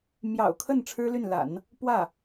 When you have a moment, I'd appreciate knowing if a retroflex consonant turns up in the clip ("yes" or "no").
yes